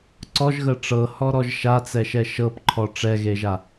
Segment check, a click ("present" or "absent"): present